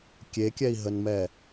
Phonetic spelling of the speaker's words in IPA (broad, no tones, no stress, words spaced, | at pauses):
kʲekʲɛi̯ɦənmɛ